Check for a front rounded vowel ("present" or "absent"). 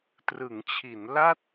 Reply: absent